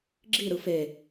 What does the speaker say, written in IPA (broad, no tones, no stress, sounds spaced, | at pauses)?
ɡ͡ǁ i ɾ ɯ f e